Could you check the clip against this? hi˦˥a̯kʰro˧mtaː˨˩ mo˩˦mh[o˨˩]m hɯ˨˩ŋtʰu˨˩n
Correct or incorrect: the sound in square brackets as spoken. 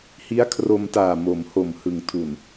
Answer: correct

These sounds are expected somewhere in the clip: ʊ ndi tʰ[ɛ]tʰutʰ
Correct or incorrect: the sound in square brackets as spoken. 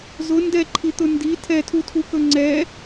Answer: correct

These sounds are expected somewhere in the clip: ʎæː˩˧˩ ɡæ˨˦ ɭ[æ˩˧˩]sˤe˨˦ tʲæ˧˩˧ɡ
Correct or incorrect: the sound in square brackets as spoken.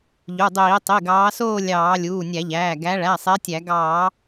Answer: correct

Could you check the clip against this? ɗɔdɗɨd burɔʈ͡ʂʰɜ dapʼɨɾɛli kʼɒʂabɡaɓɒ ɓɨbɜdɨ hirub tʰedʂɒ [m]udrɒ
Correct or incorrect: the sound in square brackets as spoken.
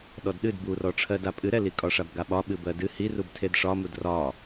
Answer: correct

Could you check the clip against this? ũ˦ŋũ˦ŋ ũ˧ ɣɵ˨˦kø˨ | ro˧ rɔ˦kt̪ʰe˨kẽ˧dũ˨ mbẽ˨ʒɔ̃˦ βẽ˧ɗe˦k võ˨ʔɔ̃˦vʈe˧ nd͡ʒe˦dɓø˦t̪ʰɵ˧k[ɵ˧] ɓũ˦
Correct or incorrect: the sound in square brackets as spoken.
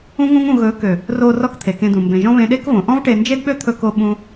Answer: incorrect: o˧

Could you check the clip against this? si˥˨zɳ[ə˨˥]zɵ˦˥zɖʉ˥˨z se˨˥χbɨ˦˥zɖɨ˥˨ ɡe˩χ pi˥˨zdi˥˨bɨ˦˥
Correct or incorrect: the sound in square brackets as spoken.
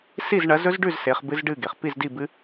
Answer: incorrect: ɐ˨˥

